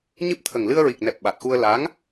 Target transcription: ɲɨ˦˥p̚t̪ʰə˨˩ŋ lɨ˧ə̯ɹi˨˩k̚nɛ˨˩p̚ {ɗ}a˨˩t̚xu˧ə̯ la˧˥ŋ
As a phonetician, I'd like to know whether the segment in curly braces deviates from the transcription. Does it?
yes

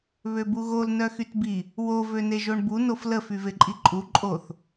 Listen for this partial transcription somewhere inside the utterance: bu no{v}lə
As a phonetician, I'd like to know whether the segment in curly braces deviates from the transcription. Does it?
yes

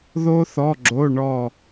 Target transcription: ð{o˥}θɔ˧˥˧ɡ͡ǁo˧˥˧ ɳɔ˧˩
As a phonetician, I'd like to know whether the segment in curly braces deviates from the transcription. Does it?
no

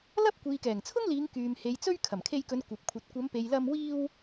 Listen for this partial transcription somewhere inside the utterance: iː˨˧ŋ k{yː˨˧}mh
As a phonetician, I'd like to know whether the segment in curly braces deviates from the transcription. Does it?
yes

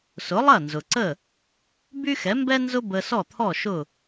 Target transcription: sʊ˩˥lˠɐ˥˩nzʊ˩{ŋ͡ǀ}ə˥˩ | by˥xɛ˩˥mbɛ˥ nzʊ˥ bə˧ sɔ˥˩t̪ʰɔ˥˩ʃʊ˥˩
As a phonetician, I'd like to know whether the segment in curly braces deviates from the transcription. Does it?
yes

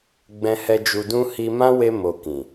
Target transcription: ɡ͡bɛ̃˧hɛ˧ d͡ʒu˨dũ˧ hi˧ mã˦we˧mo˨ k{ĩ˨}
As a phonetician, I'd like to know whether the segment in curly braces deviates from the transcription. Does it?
no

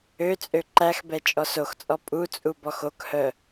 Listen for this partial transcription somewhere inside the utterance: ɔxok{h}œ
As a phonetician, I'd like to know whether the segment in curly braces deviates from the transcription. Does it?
no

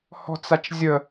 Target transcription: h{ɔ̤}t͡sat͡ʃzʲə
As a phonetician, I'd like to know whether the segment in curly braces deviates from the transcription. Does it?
no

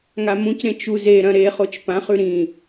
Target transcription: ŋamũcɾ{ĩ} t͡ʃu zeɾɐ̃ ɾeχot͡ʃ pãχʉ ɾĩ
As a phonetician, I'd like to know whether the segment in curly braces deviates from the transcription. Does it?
yes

